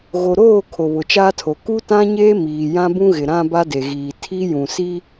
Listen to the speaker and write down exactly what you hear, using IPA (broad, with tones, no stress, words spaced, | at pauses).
ɣo˨ɾoː˦˨ kʰo˨βʊ˨t͡ʃaː˦tʰo˨ ku˦tã˦ɲeː˦ miː˨jã˦bũ˦ɣɪ˨ ɾã˦ ba˦de˨ɣiː˨ tʰi˦jũ˨si˦